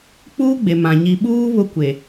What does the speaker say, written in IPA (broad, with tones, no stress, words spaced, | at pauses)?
k͡puː˦ɡ͡be˨mã˨ ɲi˨ɓuː˦ βʊ˦kʷe˨